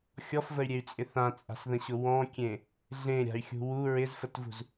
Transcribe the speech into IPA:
xʲ ɔ f v ə y̯ ɾʲ e y̯ t͡sʼ ɪ θ ã t͡sʼ a̤ s ð ə̃ ɕ ʊ w ɔ̃ kʲ ẽ | ɮ ẽ ɾʲ a̤ y̯ xʲ ṳ w u ɹ ɪ z f ə t v ṳ z

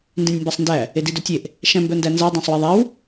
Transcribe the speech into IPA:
n d ĩ nʲ m b æ sˤ n d æ | e d i d œ tʲ e ʔ | ʃ æ̃ m b œ n d æ n z æ dˤ æ̃ sˤ w i ðˤ æ w

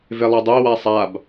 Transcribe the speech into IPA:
v e lˠ ɛ dˤ e w a sˤ a b

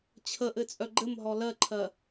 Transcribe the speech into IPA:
t͡ɕʰ ə ʔ ɘ t͡sʼ œ ɡ͡ǃ ɘ m ɦ ɔ l ɜ ǃʰ ɜ

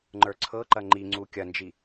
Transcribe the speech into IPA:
ŋ͡ǃ ə˞ ǀʰ ɤ ǃ ɐ ŋ͡ǃ i ŋ͡ǀ u kʲ ɐ n d͡ʒ i

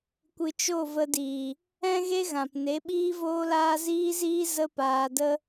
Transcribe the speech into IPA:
kʷ ɨ˨ t͡ʃ o˦˨ v ə˧ d iː˨ | ɛ̃˦ ɣ e˦ ɣ ã˨ p n e˨˦ ɓ iː˦ v oː˦ l aː˦ z iː˦ z iː˦ z ə˦ p aː˧ d ə˦

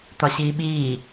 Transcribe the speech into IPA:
t̪ ɒ ɕ iː ɓ iː

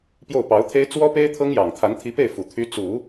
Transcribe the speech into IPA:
p j o˥˩ ʊ̯ p ɑ˧˥ ʊ̯ t̪ʰ e˥ ɪ̯ t͡s w ɔ˥ p e˥ ɪ̯ t̪ʰ ɤ˥ ŋ j ɑ˨˩ ŋ t̪ʰ a˧˥ n t̪ʰ i˧˥ p e˥˩ ɪ̯ f u˨˩ t̪ʰ y˧˥ t͡s u˨˩˦

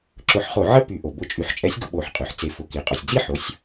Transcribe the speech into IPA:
ǁ ʊ˧˩˧ ħ χ o˧˩˧ ʕ ə˥˨ p y˧˩˧ ʔ o˩ b ʊ˧˩˧ t͡ʃʼ y˩˧ ħ t͡ʃʼ ɛ˨˥ sʲ ɡ ʊ˧ ɓ o˧˩˧ ħ qʼ y˩ ħ t͡s e˩˧ f ʊ˩˧ k i˩ qʼ o˩ sʲ d͡z i˥˨ ħ o˩˧ sʲ

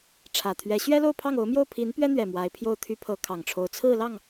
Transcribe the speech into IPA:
ʈ͡ʂʰ ä˨˩ t̪ʰ ɥ ɛ˧˥ ɕ ɥ ɛ˥ l o˥˧ ʊ̯ pʰ ɑ˥˩ ŋ o˧˥ ʊ̯ m j o˥˩ ʊ̯ pʰ i˧˥ n p ɥ ɛ˥ n̪ ɥ ɛ˨˩ m w a˧˥ ɪ̯ pʰ j o˥˩ ʊ̯ t̪ʰ y˥ pʰ ɤ˧˥ kʰ ɑ˨˩ ŋ ʈ͡ʂʰ o˧˥ ʊ̯ t͡sʰ ɹ̩˥˧ l ɑ˥˩ ŋ

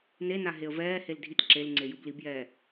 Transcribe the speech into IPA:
n e n a ɦ e ə̯ v ɛː h e l dʱ i t ǁ e l ŋ͡ǀ e j ɯ b l i b j ɛː

